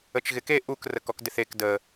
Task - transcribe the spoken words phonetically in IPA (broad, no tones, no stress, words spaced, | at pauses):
ət͡ʃɣɪke ʔuk rəkɔkdɪθek də